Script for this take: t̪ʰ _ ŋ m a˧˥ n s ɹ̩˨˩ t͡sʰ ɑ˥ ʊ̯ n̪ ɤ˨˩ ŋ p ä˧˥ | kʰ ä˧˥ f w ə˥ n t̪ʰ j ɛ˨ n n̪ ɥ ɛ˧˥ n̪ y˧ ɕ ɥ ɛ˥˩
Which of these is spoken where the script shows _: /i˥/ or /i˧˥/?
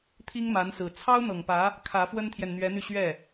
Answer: i˥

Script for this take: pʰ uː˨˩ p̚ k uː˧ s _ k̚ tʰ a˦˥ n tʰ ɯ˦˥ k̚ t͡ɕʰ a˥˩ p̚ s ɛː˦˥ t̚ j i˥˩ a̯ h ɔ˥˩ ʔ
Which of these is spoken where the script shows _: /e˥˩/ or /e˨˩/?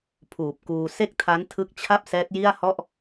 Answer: e˥˩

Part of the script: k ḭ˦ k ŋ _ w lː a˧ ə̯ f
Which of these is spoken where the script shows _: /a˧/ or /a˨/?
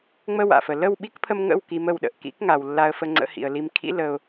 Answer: a˨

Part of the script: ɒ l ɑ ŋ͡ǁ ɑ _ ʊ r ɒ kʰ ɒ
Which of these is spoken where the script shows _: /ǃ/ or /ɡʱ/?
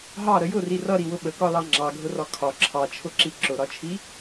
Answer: ɡʱ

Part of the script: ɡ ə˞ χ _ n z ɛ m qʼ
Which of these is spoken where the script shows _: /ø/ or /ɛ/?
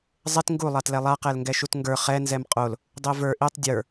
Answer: ɛ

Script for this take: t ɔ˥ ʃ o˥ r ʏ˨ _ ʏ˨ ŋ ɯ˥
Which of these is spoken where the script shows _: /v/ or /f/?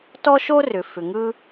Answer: f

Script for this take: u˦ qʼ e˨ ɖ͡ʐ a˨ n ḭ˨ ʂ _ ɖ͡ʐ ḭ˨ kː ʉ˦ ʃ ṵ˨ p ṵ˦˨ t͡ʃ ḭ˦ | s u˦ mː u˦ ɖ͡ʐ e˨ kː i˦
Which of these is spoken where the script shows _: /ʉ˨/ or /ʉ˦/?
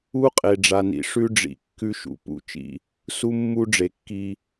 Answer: ʉ˦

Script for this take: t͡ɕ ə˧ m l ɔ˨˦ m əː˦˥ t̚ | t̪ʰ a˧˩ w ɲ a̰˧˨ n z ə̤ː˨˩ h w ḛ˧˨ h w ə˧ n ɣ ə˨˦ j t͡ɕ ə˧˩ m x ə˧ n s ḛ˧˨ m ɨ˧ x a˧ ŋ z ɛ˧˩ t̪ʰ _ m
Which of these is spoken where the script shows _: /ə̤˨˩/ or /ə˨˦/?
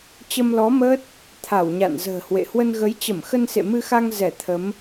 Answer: ə˨˦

